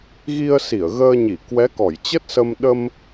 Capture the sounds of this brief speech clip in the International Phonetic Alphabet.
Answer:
ɣ i˧ ə̯ s i˧˩ ə̯ ɣ əː˧ ɲ i˧˩ k w ɛ˨˦ k ɔ˧˩ j t͡ɕ ə˦˥ t̚ s ə˧ m ɗ ə˧ m

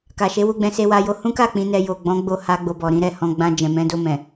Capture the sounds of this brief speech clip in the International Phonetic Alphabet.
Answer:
k a˨ ʃ e˨˦ w u˧ ɡ͡b ɛ̃˧ s e˦ w a˦ j o˦ h ũ˦ k a˦˨ k͡p ĩ˧ n ɛ˧ j o˨ ɡ͡b ɔ̃˨˦ ɡ͡b o˧ h a˧ ɡ͡b o˧ b ɔ˨ ɾ ĩ˨˦ ɾ ɛ˦˨ h ɔ̃˧ ɡ͡b ã˧ d͡ʒ ɛ̃˨ m ɛ̃˨˦ d o˧ m ɛ̃˨

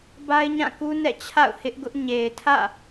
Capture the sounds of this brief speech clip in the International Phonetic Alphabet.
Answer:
b a˦ ɪ̯ ɲ ã˦˨ k u˦ n ɛ̰˦˨ t͡ɕʰ a̰˦˨ ʊ̯ h ɪ˦ ʔ ɡ ʊ˦ ʔ ɲ e˨ ɪ̯ tʰ ä̰˦˨

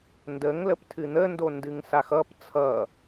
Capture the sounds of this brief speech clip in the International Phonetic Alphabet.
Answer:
n d ə ŋ l ə p tʰ ɨ n̪ ə n d o n d ɨ ŋ s a x ʌ p t͡sʰ ʌ

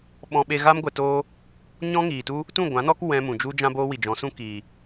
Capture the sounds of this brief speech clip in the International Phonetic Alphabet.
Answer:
ɓ ɔ̃˧ ɓ e˧ ɣ a˦ m ɡʷ ɛ˧ t oː˦ | ɲ ɔ̃˦ ŋ iː˨ t u˦ | t ũ˦˨ ɡʷ ã˨˦ n ɔ˦ k w ɛ̃˧ m ũ˨ d͡ʒ u˦ d͡ʒ ã˦ b oː˦ w i˨ d͡ʒ ɔ̃˨˦ s ũ˦ k iː˨

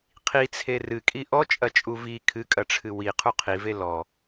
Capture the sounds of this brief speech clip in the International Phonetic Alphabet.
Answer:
qʰ i t͡sʰ e r ɨ kʼ i ʔ ɔ t͡ʃʼ ɐ t͡ʃʼ u v i kʰ ɨ kʼ ɐ ʈ͡ʂʰ ɨ w i qʰ u qʰ i v e l ɔ

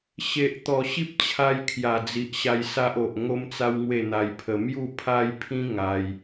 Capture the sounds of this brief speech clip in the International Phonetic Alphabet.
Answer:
ɕ e˨ ʔ t̪ ɔ˨˩ ɕ i˦ p̚ t͡ɕʰ a˧ j kʰ j a˨˩ d͡z i˨ ʔ ɕ a˧ j s a˦ ʔ o˨ ʔ ŋ o˦ m t͡s a˦ w ŋ w e˥˧ n̪ a˧ j pʰ ə˧ m j u˥˧ pʰ a˦ j pʰ ĩ˦ ŋ a˦ j

